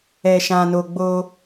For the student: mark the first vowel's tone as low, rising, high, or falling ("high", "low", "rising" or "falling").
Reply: low